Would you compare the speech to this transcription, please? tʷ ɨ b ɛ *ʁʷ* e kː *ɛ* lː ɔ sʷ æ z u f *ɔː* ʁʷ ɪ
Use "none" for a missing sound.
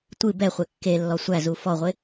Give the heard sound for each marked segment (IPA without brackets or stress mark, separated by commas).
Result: χʷ, e, ɔ